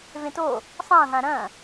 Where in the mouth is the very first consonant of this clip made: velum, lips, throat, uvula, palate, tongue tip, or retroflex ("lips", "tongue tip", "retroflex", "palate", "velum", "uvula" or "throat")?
lips